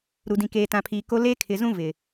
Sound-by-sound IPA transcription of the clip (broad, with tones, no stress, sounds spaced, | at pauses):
ɾ u˨ d ĩ˨ k eː˨ t ã˨ pʰ iː˨ k o˦ l eː˦ kʰ ɪ˨ z ũ˦ v ɪ˨